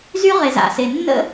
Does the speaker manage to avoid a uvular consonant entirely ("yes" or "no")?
no